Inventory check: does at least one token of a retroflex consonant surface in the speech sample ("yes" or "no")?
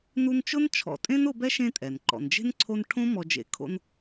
yes